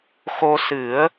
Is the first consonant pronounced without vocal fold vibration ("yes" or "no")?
yes